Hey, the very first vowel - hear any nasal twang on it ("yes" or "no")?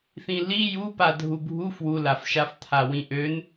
yes